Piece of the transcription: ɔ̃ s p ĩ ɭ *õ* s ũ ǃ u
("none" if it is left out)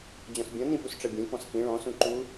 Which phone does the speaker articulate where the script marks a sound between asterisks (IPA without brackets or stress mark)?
ɔ̃